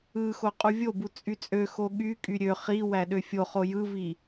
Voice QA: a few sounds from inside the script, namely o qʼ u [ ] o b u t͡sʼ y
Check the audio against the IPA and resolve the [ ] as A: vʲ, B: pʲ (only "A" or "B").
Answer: A